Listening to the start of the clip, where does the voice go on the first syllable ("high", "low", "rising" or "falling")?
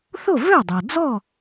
falling